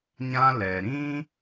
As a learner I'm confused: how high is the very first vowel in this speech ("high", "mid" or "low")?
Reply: low